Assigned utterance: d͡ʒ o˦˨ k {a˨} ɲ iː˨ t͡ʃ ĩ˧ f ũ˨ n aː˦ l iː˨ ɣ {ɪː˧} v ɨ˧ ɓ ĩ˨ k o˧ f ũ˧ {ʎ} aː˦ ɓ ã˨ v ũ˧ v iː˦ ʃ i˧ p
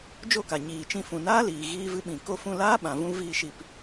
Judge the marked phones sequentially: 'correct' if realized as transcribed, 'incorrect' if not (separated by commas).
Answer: correct, incorrect, incorrect